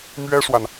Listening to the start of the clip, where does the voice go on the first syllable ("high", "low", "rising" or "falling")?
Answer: high